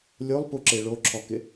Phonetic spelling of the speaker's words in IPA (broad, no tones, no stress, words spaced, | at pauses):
lʲolˠpuǁe ɭoǁʰɔkɪ